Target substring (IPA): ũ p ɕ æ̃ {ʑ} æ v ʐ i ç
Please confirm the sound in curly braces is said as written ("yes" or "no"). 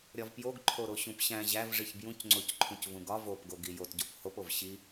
yes